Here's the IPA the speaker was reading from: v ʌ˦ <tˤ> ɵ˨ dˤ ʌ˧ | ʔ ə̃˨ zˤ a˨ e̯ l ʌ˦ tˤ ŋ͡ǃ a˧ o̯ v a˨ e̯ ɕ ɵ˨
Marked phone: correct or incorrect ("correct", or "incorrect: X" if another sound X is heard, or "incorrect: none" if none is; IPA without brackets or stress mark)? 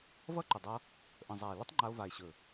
incorrect: ǃ